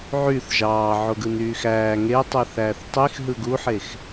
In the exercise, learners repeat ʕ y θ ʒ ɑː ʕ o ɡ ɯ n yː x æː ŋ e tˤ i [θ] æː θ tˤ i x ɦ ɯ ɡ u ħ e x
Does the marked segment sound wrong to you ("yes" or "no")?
no